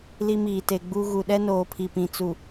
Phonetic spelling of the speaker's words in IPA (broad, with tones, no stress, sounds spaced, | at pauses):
l i˦ m iː˨ t e˨ ɡ͡b u˦ ɣ u˨ ɗ ɛ˦ n oː˨ pʰ i˨ p ĩ˨ t͡s u˨